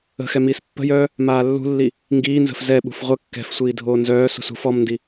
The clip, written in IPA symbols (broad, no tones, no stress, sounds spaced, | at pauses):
ə̤ x ɛ m iː s pː ə̤ j œː | m aː lː ṳ lː i | ŋ ɡ iː n z ə̤ f z ɛ ɓ ṳ f ʁʷ ə kː ɛ̤ f sʷ iː dʱ oː n z œː s ṳ s ṳ f ɔ m n d i